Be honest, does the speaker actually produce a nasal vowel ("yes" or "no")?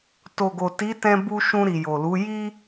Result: yes